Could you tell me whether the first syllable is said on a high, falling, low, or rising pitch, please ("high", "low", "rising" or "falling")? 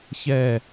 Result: falling